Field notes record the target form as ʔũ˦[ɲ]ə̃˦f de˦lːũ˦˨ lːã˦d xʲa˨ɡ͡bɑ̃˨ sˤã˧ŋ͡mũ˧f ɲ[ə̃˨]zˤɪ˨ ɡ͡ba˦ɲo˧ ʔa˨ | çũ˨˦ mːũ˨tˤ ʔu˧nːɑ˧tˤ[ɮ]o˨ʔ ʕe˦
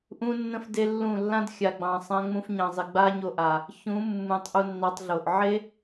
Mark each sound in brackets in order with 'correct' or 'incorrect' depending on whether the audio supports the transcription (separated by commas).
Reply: incorrect, incorrect, correct